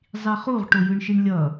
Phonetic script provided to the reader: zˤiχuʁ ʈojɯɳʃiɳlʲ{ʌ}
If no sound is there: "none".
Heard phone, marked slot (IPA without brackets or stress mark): ʌ